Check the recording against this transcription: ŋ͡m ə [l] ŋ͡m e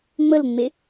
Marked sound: correct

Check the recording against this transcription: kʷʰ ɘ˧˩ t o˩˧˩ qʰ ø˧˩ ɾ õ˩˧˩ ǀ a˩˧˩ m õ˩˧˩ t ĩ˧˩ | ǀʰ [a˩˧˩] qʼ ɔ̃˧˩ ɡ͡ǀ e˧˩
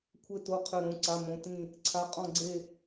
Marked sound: correct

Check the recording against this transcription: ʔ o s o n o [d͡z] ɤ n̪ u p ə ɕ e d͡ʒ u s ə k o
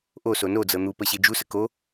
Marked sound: correct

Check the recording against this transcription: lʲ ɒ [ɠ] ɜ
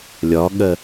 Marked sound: correct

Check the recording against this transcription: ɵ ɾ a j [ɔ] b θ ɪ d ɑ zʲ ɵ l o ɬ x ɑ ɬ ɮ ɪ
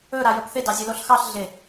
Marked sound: incorrect: ə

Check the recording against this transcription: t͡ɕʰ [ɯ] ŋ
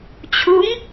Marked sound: incorrect: u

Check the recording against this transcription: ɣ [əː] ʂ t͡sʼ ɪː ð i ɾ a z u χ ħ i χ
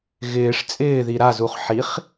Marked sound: incorrect: ɪː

